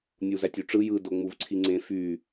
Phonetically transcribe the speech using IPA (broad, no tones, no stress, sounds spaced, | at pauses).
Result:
nʲ u z æ tʲ y ʈ͡ʂ ɯ j ɯ d o ŋ͡m u v ǀʰ i ŋ͡ǀ ẽ f y